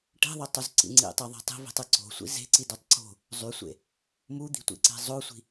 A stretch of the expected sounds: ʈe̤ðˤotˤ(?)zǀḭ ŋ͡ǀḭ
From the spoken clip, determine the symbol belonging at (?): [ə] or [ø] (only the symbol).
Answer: ø